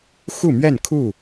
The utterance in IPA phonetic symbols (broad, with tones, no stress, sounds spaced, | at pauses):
x u˥˨ m ɥ ɛ˥˨ n kʰ u˥˨